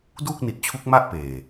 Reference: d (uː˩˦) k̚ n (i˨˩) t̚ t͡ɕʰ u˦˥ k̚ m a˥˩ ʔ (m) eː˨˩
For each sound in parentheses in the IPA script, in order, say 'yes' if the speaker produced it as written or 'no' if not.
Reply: no, yes, no

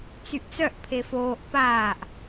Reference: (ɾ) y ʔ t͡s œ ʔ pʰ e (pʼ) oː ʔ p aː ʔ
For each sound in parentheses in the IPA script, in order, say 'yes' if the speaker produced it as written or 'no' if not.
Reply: no, no

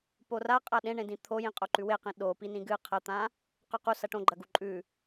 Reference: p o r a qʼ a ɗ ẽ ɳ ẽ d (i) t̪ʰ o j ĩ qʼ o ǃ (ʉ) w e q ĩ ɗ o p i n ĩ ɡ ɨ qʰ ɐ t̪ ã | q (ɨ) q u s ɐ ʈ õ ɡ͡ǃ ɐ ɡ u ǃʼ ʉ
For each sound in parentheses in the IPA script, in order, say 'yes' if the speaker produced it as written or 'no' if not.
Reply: no, yes, no

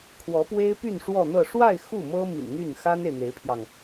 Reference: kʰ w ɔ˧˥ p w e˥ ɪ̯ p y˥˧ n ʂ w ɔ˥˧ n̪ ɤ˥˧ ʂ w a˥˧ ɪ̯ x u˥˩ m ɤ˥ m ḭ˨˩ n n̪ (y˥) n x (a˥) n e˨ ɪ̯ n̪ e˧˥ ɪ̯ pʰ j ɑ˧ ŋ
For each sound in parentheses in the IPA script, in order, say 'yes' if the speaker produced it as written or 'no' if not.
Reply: no, yes

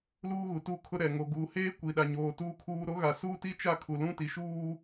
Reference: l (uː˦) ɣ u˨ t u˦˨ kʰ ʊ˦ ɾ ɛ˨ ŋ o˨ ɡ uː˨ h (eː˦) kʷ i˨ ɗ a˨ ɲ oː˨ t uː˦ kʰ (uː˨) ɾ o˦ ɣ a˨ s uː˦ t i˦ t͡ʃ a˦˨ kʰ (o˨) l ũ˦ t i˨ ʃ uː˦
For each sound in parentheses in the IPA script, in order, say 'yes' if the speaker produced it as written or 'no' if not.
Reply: yes, yes, no, no

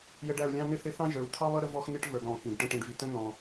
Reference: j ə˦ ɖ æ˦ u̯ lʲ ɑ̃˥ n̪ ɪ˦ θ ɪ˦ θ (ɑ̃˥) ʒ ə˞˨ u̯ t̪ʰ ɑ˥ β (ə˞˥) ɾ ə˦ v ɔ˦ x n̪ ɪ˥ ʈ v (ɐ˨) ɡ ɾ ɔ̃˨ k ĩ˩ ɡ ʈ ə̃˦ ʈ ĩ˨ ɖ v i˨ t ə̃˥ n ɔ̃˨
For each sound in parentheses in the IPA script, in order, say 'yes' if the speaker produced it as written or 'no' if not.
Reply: yes, no, no

